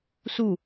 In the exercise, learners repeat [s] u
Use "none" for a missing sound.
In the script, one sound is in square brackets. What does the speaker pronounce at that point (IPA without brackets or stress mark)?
s